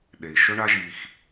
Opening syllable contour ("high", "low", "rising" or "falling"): low